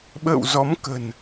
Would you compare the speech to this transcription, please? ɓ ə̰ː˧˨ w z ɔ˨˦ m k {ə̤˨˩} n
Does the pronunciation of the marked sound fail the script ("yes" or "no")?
no